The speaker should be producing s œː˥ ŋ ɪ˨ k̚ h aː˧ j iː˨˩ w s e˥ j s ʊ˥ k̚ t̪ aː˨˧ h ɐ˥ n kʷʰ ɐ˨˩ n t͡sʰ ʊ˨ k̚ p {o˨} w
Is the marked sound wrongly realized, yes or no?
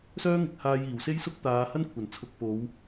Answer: yes